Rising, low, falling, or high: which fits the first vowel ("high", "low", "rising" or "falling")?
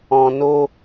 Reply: low